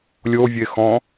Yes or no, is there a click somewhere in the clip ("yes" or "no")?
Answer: no